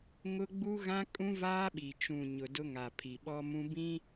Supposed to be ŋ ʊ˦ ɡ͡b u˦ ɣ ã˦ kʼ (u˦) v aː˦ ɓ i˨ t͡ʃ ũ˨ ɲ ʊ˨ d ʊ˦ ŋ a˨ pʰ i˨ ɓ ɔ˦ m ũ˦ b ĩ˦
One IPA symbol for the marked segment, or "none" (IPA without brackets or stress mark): ũ˦